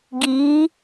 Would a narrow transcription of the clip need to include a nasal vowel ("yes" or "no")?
no